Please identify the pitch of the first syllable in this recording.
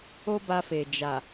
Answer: high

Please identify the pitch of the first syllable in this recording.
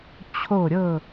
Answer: falling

